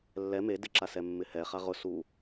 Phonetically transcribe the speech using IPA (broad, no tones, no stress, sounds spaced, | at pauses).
lː ɛ m e d ɪ ǁ a s ɛ mː ɪ h ɛ χ a ʁ ʊ s u